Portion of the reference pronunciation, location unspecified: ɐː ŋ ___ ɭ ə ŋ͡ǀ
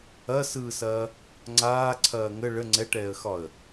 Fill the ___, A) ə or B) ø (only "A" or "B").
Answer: A